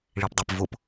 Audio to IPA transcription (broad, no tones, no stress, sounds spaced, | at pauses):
ɭ i p dˤ ə˞ p v ʊ p